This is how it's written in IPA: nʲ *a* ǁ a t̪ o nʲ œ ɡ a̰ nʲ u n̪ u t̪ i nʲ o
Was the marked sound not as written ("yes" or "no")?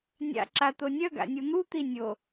yes